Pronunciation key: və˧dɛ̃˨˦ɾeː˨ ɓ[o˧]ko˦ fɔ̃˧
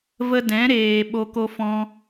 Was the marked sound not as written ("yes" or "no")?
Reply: no